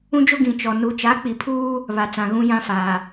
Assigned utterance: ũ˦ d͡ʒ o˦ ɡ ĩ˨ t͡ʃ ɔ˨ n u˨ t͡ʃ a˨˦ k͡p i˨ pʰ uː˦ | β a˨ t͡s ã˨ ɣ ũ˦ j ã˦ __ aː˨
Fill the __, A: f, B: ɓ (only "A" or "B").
A